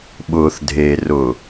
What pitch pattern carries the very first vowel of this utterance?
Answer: low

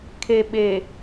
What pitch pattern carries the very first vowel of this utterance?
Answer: low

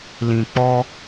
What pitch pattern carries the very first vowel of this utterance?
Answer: low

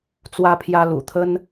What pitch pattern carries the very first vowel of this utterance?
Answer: high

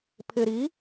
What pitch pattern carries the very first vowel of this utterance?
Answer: low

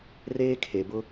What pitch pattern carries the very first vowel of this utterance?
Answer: high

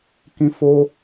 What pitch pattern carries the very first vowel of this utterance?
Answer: high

